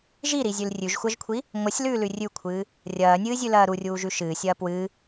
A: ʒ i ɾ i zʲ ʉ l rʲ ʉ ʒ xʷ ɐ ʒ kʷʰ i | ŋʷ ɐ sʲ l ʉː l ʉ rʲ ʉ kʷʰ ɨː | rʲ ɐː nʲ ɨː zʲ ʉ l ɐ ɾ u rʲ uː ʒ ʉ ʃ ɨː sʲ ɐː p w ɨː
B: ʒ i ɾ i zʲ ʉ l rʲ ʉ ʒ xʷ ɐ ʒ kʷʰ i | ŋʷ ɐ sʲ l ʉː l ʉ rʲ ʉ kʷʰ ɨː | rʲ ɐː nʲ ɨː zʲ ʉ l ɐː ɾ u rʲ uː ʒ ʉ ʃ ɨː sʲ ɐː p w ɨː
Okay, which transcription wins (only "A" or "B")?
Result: B